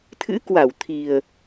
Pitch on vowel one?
rising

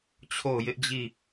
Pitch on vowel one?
falling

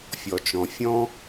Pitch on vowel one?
low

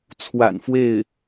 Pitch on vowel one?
low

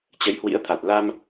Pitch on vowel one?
rising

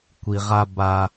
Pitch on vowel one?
low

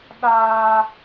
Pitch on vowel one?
high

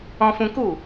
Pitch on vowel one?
high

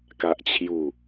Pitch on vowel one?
low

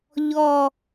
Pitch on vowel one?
falling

